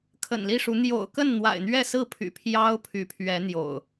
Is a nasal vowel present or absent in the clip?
absent